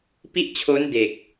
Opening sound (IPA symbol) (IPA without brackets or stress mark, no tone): p